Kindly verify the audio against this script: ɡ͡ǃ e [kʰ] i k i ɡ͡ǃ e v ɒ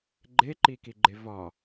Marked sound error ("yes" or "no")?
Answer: yes